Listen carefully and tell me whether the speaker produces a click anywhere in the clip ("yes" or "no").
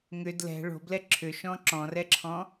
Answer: yes